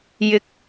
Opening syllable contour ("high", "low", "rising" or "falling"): rising